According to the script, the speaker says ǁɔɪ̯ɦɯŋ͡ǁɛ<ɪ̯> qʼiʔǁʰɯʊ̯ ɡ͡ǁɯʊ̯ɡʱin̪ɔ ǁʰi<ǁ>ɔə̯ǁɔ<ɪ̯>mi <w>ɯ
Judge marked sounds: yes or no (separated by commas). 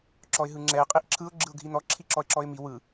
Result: yes, yes, yes, yes